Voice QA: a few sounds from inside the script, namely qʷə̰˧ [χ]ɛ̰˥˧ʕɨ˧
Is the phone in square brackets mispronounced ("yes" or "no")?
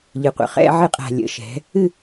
no